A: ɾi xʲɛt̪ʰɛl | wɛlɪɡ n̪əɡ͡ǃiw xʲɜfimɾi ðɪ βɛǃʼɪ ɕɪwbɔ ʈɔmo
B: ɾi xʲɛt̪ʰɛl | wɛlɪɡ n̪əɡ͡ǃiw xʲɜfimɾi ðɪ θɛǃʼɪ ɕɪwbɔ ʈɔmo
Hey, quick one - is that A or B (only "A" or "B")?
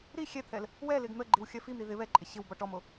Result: A